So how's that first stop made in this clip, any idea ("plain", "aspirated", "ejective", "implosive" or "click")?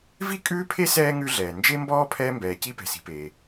ejective